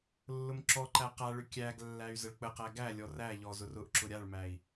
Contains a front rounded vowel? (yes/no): yes